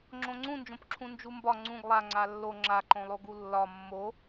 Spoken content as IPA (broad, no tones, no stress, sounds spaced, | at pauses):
ŋ͡ǁ õ ŋ͡ǀ ũ n d͡ʒ õ p ǁʰ ũ n d͡ʒ u m b ɒ ŋ͡ǀ ũ ɡ lˠ a ŋ͡ǀ a lː o ŋ͡ǁ a ǃ õ lˠ o ɡ u lː ɒ mː o